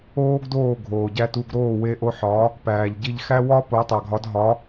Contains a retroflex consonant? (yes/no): no